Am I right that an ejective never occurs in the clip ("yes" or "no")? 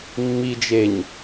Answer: yes